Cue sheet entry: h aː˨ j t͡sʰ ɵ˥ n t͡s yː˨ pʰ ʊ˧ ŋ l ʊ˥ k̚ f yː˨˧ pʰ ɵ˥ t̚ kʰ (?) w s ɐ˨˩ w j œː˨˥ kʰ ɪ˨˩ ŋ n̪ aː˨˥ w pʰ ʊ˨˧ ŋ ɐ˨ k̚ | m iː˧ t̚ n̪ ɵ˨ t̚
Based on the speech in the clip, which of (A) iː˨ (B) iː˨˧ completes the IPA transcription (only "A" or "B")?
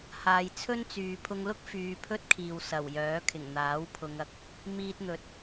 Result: A